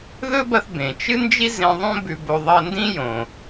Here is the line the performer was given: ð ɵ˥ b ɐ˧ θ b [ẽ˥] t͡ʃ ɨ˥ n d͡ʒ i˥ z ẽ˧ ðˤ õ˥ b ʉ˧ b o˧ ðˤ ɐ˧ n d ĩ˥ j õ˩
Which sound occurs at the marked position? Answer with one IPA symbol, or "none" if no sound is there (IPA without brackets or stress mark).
ẽ˩